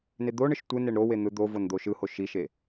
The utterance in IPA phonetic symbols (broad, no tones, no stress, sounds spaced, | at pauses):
n e d̪ o ɳ ɯ ʃ tʷ ɯ n e ɳ ɾ o w e n̪ ɯ d̪ o v o n d̪ o ʃ ɯ h o ʃ i ʃ e